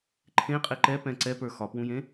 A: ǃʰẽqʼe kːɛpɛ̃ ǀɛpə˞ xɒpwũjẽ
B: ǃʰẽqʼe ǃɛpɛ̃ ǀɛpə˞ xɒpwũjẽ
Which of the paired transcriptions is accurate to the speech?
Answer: B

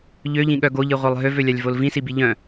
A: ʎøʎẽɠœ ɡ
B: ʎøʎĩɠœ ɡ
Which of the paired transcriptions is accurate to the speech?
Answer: B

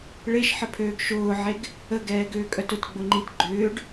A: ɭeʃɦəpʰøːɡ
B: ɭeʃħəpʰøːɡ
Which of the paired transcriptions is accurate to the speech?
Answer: B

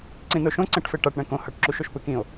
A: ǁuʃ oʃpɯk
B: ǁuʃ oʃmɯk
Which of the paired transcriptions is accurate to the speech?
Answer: A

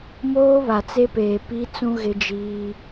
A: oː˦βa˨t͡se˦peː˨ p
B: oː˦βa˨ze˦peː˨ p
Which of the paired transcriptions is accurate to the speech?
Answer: A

